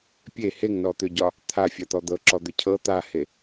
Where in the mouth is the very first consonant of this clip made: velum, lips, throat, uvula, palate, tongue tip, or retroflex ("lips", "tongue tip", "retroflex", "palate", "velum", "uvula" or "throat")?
lips